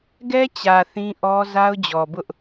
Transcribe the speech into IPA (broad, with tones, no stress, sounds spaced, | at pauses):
ɡ ɛ˦ t͡ɕ ä˨ θ ĩ˦ ʔ ɔ˦ z a˦ ʊ̯ d͡ʑ ɔ˨ b ʊ˦ ʔ